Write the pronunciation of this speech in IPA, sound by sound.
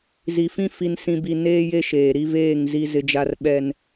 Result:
z i˨ f ĩ˦ f i˨ n s ĩ˨ b i˨ n eː˦ j e˦ ʃ eː˨ ɾ i˦ v eː˦˨ ŋ z i˦ z ɪ˦ d͡ʒ a˦ r ɓ ɛ˦ n

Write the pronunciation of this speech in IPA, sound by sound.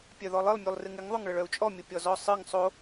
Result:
pʲ œ ð ɔ lˠ ɨ lˠ mʲ u lˠ r ɨ ŋ ɪ ŋ ðˤ o ŋ ɭ ə ɭ œ u̯ t͡ʃʼ ɔ mʲ ə pʲ ɔ z ɔ sˤ ɨ ŋ sˤ o

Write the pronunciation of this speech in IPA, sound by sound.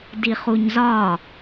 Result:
d i χ u ɲ z ɒ

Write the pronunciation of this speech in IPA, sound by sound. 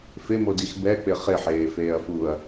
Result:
f ɪ m o d i x b ɛ k͡p ɪ χ ɪ ħ eː f eː ɐ̯ f uː ɐ̯

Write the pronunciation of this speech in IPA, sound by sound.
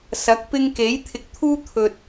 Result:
s ɐ˨˥ k̚ p ɪ˥ ŋ k e˨˥ j t̪ʰ ɪ˨˥ k̚ t̪ʰ uː˥ t̪ʰ ɵ˨ t̚

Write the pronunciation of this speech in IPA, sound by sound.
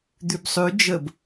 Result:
d̪ ʉ b sˤ ʉ d͡ʒ ə b

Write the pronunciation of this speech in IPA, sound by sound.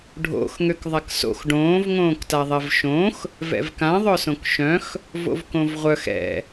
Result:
ɖʱ o̰ x ŋ ø k ðˤ a k s o̰ x ɖ õː v ŋ õː k t a ðˤ ɛ v ʃ õ x | v ɛ̰ v k ã ðˤ œ s õ k ʃ œ̃ x | v o̰ v k õ v ʁʷ œ x ɛ̰

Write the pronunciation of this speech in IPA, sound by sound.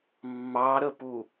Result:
mː ɑ ɾ ə p u

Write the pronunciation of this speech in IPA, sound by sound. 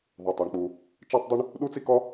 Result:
ðˤ u˩ tˤ a˩ ɳ k͡p u˩ | t͡ʃ ɛ˥ tˤ dˤ i˥ ɳ | ɗ u˥ t͡s i˥ k ɔ˥

